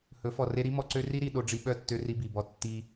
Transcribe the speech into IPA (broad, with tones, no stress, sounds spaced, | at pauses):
h ɵ˨˦ f ɔ˨ r e˦ ɾ i˦ m ɔ˨ ǀ ø˦ r i˦ ɾ i˨ ɗ o˦ ɖ͡ʐ i˦ ɓ œ˦˨ tː ø˦ r i˦ b i˨ b ɔ˦˨ tː i˦